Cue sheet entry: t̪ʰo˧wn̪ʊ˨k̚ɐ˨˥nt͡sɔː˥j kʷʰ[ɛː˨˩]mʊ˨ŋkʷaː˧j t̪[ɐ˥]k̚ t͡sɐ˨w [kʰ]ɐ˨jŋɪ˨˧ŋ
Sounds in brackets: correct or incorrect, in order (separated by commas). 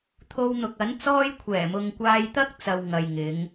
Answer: correct, correct, incorrect